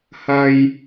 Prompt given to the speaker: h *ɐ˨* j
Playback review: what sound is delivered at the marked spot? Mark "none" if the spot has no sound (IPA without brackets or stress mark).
ɐ˥